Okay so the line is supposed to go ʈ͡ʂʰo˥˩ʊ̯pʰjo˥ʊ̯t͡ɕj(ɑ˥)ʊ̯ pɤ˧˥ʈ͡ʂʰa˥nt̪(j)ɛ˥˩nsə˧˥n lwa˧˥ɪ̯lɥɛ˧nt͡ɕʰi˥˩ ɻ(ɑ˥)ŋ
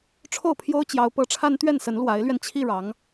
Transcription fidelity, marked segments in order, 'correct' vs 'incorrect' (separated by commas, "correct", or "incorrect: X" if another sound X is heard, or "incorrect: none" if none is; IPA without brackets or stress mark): incorrect: ɑ˧˥, incorrect: ɥ, incorrect: ɑ˧˥